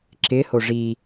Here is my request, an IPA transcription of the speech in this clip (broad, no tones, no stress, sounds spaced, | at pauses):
ǁ ɪ h o ʐ i